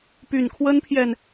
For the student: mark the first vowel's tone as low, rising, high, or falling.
low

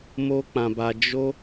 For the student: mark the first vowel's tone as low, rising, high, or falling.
high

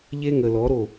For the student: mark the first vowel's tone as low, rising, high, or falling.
high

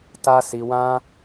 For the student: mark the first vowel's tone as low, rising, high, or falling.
high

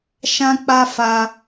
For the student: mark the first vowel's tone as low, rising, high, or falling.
high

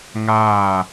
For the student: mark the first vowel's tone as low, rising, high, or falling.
falling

